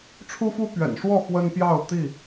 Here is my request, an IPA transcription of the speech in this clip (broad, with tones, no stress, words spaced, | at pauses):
ʈ͡ʂʰu˦fu˦ pɥɛ̰˨˩nʂwɔ˥˨ xwə˦n pjɑ˥˨ʊ̯ t̪i˥˨